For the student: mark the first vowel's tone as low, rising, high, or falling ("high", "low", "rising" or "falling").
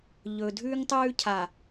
low